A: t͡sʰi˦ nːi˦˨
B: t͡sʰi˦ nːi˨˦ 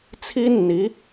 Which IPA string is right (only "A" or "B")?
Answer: B